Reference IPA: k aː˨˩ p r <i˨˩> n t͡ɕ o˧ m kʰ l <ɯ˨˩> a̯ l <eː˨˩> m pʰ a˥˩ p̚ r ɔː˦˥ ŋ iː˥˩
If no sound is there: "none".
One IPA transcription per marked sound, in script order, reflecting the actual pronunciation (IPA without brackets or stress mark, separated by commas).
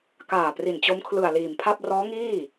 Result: i˨˩, ɯ˨˩, iː˨˩